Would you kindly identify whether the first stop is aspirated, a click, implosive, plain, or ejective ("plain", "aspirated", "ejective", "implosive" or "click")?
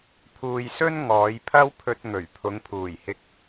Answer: aspirated